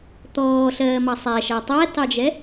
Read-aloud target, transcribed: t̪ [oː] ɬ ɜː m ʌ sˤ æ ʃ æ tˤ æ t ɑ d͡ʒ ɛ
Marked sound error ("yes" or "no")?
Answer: yes